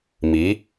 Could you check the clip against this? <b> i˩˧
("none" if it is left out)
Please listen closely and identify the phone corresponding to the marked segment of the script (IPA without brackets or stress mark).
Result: m